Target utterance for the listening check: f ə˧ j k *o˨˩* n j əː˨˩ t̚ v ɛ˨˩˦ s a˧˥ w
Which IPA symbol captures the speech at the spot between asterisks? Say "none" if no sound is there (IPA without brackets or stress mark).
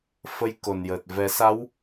o˨˩